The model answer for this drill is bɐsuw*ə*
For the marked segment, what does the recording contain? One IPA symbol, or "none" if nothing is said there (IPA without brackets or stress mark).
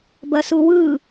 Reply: ɯ